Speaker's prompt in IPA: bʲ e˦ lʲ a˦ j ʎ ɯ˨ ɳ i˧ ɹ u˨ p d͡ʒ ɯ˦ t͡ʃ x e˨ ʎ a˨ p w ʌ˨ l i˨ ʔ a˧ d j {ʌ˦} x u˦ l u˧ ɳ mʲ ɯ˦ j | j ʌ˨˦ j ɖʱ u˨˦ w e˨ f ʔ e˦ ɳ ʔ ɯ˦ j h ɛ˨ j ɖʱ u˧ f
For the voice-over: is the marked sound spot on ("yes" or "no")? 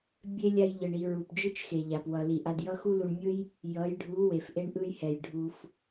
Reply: yes